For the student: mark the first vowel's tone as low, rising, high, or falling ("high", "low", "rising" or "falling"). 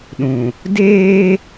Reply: low